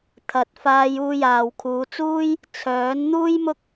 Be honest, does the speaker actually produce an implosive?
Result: no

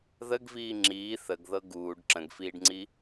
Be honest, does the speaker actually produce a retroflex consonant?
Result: yes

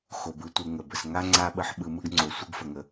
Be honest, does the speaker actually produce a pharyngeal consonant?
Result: yes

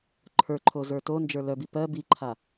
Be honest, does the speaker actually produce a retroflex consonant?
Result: no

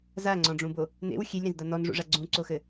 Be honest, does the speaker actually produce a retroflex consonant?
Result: yes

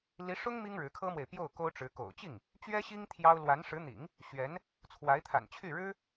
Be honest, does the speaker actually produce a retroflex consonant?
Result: yes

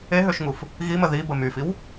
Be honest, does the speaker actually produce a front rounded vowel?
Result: yes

